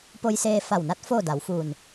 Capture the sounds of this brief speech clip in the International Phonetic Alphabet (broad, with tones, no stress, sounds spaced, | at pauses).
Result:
p o˧ j s eː˧ f a˧˩ w n a˧˥ t̚ f oː˥˨ d a˩˧ w f uː˧˩ n